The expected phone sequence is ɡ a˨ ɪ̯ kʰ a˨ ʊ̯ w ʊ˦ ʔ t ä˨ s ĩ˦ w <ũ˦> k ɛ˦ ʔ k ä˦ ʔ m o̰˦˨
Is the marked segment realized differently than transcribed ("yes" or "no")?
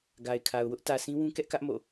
no